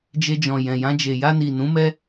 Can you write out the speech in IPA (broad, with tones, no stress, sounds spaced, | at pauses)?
d͡ʒ e˧ d͡ʒ ɔ̃˨ j ɛ̃˨ j ã˧ d͡ʒ e˨ j a˧ n i˨ n ũ˨˦ m ɛ˦